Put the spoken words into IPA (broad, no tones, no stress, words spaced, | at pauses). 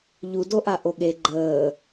ʎudoʔa ʔoɠe ɡ͡ǃəː